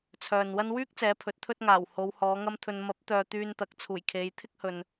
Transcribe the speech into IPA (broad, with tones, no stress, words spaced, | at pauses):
t͡sʰœː˨nwɐ˥n wyː˥k̚t͡sɛː˨˧ pʰɵ˨˥t̚t̪ʰɵ˥t̚ ŋaː˨˩w ho˨˧whɔː˨˧ŋɐ˥mt̪ʰɵ˧n mɐ˨˥p̚t̪œː˨ t̪yː˧nt̪ɐ˨k̚ t͡sʰuː˨˩jkʰe˨˧j t̪ʰɪ˥k̚hɵ˨n